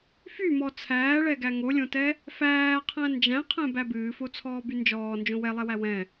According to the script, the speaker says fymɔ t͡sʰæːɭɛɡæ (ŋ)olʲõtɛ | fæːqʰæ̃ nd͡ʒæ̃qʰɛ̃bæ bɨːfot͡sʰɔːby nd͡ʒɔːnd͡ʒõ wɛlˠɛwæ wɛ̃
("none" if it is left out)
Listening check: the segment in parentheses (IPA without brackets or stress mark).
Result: ŋ